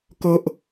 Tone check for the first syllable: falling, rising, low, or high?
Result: high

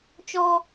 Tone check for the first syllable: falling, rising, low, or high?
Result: high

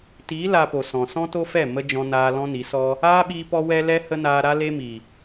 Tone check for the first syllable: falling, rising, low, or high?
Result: rising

